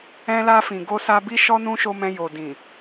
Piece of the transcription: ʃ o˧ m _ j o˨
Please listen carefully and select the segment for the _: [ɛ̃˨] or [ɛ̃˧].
ɛ̃˧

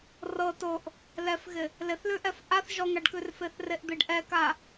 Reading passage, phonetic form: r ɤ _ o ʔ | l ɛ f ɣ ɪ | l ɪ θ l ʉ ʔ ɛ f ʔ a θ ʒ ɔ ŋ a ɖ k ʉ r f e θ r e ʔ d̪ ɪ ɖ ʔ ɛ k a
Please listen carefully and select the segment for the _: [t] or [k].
t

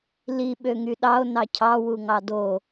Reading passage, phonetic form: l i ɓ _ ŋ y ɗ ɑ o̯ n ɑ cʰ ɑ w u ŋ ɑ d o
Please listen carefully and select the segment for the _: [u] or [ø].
ø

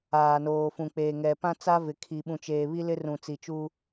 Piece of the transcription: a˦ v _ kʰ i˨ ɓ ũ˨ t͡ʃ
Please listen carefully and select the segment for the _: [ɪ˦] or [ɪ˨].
ɪ˨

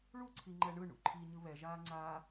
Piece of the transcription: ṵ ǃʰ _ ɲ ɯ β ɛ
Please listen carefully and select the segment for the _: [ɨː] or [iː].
iː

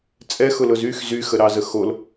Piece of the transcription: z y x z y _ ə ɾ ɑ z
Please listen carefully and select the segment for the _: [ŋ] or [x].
x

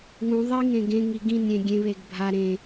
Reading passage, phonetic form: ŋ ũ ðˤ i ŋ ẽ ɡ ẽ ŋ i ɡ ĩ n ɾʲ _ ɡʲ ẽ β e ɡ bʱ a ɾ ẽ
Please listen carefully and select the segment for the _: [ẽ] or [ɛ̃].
ẽ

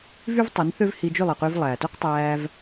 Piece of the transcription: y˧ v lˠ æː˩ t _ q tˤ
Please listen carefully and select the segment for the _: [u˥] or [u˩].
u˥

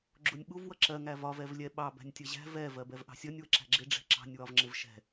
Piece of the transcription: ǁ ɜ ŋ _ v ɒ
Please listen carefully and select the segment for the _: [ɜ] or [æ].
æ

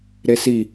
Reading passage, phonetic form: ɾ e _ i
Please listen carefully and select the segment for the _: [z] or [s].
s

